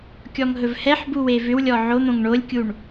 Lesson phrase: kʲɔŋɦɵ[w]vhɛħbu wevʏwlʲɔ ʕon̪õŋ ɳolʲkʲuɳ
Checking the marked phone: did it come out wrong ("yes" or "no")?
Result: yes